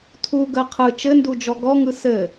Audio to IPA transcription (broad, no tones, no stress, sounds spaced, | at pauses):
tʰ u ɡ ɜ qʰ ɯ t͡ʃ ɘ n d u d͡ʒ ɔ ɡ ɔ ŋ ɯ s ɘ